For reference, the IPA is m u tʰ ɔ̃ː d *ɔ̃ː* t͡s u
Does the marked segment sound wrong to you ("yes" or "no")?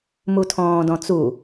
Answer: yes